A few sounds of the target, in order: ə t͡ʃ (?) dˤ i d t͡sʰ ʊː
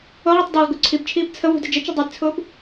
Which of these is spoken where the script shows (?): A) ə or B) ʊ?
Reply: B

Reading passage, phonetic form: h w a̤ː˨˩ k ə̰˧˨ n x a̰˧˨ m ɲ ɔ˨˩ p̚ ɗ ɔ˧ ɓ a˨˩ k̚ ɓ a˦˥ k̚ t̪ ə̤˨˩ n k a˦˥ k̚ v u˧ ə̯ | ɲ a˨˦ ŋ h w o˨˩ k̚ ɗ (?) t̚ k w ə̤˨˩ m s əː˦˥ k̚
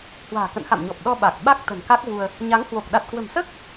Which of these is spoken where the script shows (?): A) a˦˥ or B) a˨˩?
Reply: B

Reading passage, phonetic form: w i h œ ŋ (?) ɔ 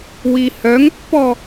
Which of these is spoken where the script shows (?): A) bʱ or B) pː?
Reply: B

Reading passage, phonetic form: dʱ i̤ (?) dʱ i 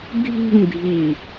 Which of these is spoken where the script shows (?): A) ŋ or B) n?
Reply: A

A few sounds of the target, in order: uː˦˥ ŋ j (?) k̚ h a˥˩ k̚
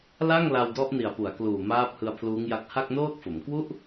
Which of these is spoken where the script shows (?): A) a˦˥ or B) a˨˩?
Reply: A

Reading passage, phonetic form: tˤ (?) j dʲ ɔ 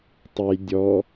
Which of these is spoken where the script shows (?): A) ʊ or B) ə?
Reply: B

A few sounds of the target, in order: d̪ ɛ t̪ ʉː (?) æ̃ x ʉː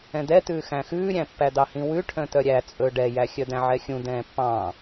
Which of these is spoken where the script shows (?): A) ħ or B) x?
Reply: B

